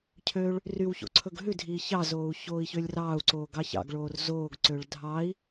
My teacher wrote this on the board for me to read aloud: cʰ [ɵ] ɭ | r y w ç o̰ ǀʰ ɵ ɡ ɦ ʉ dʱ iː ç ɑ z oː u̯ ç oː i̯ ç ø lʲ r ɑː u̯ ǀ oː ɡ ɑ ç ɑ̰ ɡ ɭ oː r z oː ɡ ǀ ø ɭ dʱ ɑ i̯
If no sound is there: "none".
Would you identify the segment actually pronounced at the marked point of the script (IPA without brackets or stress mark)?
ø